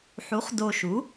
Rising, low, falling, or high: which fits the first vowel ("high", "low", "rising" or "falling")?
rising